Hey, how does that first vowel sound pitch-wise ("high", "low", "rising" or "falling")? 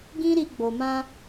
high